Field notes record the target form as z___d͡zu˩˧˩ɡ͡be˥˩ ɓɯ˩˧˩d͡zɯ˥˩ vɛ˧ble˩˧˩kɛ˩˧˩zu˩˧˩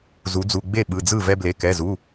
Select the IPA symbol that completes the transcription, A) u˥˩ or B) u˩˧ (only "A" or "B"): B